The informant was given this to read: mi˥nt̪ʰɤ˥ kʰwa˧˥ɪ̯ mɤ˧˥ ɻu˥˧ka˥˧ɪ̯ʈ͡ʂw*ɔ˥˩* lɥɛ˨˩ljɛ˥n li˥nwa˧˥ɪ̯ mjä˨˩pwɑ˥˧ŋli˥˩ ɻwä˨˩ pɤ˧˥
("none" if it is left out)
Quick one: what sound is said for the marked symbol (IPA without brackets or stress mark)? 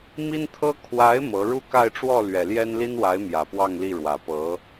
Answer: ɔ˥˩